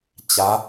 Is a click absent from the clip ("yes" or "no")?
yes